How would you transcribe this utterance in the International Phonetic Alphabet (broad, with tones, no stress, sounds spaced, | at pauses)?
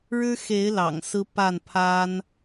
ɻ ɻ̩˦ x e˨˦ ɪ̯ l ɑ̰˨˩ ŋ s ɹ̩˦ p a˥˨ n pʰ a˦ n